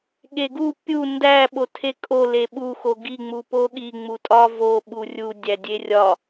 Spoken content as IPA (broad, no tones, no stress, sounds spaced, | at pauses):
ɠ e ɡ u pʲ u n d æ ɓ o tʰ e kʼ o l e ɓ u x o ɡ i ŋ͡m u p o ɠ i ŋ͡m u tʼ ɒ v o ɓ u rʲ u dʲ æ dʲ e rʲ ɒ